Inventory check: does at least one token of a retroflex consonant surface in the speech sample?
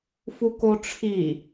yes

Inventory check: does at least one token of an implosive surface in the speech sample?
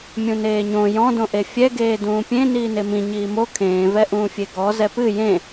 no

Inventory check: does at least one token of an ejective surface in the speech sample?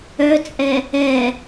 yes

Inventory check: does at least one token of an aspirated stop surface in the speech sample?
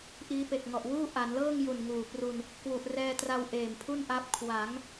yes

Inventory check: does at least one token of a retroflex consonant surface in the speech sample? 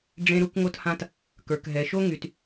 yes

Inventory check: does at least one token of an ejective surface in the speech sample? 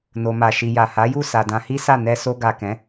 no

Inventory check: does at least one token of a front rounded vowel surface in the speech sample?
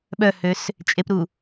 yes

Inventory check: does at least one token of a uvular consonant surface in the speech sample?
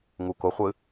yes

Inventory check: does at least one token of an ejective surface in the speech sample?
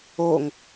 no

